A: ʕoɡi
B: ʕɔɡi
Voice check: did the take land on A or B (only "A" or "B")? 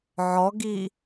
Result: B